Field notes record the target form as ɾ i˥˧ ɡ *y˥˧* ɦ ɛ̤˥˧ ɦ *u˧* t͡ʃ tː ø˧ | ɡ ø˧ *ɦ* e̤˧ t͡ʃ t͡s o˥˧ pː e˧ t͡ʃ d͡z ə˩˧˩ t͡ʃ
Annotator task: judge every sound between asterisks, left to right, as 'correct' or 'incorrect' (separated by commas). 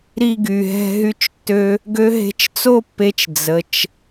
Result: incorrect, incorrect, correct